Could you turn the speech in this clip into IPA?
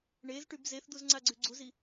ɳez ʈybzeθd̪uz ŋ͡ǀaɡ͡ǀyɡ͡ǀuzi

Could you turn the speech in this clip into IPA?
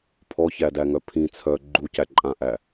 pʰɔçædæŋœ pʰĩt͡sʰœ ɡ͡ǃucæǃʼãʔæ

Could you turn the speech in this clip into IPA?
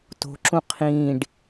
to̤ǁũ qʰĩːɖ

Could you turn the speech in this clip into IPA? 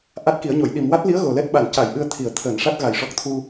ʔa˦˥t̚ki˨˩˦ə̯ɲo˨˩˨j ɗi˨˩˨mwa˦˥t̚li˧˥ə̯ ɣo˨˩ lɛ˦˥t̚ɓa˨˩˨n ca˨˩˨j ʔɨ˧ə̯t̪ʰi˨˩˨ə̯ t̪ʰəː˨˩˨nʂa˦˥t̚ ɣa˨˩jʂɔ˦˥k̚ t̪ʰu˧

